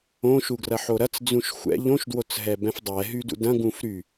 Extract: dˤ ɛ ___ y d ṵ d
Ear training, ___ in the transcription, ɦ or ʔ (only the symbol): ɦ